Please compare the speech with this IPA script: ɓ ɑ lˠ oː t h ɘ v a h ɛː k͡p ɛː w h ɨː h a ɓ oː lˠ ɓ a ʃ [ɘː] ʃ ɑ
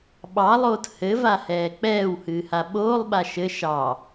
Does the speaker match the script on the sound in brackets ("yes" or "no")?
no